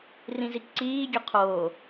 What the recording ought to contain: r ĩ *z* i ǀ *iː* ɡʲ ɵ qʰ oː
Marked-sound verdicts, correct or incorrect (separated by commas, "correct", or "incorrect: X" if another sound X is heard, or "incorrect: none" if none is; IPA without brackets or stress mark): correct, correct